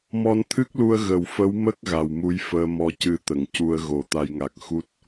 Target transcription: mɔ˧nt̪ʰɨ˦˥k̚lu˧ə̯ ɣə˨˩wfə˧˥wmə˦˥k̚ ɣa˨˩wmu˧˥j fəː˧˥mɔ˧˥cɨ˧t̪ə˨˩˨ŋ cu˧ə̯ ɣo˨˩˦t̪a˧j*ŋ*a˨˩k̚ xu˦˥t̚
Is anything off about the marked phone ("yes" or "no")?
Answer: no